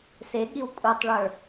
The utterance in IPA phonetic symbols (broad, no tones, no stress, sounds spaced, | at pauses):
s e ɠ i w kʷʼ ə˞ tˤ ɭ ə˞